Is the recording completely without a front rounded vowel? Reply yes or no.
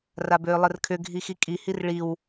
no